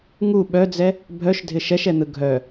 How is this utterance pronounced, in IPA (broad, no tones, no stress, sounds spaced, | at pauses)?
ŋ u ɓ œ d͡z ɛ | bʱ œ ʃ dʱ ɪ ʃ ɛ ʃ ɛ n̪ ɯ ɡʱ œ